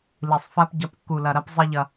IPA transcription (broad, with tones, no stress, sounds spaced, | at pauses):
l i˨ sˤ f a˦ p ɟ ɐ˨˦ p kː u˨ l ɐ˨ ɾ ɐ˦ p zˤ i˦ ʎ ɐ˦